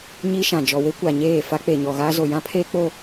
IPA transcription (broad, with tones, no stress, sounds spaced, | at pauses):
ɲ i˦ ʃ ã˨ d͡ʒ ɔ˨ w e˦ kʷ a˨ ɲ eː˦˨ f a˦ k͡p e˨ ɲ ɔ˨ ɣ aː˦ z o˨ j ã˦ pʰ eː˦ k͡p o˦